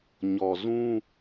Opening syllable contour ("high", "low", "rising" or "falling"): low